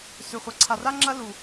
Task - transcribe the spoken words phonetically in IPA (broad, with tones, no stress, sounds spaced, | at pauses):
s ʉ˨ χʷ ɐ˨ ǀʰ a˨ r a˦ ŋ͡ǁ ɐ˦ l u˨